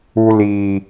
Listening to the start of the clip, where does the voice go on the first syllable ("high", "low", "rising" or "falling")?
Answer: high